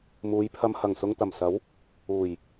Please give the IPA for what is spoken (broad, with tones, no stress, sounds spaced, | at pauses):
m uː˨˧ j pʰ ɐ˧ m h ɐ˨˩ ŋ s ʊ˨ ŋ t̪ ɐ˨˩ m s ɐ˨˥ w | uː˨˩ j